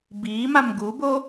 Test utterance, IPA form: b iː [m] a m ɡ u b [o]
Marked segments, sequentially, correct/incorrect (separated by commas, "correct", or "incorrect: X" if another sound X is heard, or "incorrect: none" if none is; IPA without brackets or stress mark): correct, correct